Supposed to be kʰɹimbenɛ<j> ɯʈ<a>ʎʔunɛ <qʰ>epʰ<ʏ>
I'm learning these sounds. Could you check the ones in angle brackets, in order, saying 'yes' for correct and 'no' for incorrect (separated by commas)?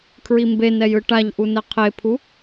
yes, yes, yes, no